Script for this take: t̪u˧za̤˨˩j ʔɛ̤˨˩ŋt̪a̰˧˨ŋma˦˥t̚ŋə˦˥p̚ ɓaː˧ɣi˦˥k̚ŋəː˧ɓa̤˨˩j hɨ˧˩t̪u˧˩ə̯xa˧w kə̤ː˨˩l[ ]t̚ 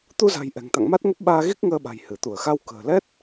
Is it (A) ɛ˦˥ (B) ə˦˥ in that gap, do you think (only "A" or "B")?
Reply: A